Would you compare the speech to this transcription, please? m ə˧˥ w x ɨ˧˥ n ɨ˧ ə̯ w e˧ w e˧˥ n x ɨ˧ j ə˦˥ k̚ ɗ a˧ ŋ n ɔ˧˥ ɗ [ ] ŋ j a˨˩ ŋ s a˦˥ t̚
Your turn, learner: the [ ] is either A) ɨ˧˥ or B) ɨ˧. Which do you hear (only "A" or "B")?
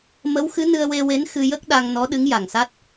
A